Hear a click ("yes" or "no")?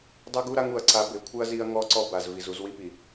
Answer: yes